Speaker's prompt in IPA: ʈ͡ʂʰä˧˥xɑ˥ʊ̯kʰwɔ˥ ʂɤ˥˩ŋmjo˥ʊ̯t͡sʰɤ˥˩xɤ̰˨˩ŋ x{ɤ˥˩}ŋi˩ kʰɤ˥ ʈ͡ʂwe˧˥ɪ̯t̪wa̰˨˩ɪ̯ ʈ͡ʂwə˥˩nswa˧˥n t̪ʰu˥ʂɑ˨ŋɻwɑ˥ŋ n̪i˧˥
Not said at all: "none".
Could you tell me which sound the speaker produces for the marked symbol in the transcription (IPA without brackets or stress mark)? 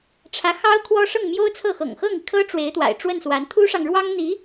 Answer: ɤ˥˩